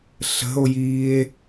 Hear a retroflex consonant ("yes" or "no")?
no